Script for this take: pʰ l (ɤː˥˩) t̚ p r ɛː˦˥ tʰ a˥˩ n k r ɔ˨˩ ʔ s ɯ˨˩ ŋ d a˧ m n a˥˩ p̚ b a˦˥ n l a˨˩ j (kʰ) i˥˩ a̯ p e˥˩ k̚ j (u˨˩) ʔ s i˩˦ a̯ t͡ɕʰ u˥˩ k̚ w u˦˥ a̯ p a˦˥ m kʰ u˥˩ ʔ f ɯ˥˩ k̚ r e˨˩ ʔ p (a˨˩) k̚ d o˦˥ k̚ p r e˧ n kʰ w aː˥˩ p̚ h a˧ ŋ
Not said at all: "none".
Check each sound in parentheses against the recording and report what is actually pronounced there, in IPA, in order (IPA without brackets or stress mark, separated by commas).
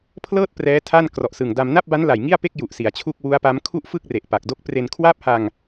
ɤː˥˩, ŋ, u˨˩, a˨˩